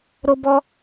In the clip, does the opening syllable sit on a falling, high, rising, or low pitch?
high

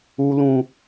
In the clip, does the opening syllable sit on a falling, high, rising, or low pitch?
low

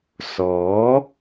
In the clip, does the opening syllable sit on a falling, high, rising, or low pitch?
rising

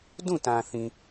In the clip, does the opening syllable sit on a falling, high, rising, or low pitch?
falling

